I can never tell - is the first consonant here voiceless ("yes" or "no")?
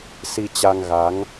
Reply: yes